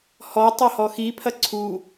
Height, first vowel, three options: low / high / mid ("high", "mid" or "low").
mid